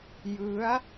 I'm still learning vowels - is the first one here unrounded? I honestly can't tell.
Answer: yes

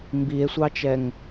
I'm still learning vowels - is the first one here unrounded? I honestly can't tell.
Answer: yes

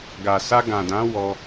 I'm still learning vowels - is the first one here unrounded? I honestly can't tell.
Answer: yes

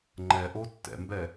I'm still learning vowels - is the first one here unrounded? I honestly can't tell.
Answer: yes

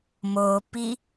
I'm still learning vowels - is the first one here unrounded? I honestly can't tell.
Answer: no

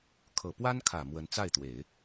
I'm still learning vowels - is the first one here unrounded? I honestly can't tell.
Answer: yes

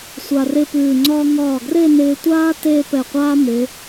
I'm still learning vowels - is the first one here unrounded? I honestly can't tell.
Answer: yes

